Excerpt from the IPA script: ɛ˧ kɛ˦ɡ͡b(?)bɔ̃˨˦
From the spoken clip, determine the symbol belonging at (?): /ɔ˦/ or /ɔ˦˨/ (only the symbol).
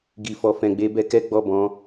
ɔ˦˨